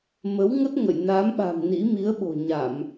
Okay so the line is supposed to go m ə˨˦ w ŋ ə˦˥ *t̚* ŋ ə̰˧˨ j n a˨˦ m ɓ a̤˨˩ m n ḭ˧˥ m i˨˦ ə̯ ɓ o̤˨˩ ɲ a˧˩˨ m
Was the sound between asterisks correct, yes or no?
yes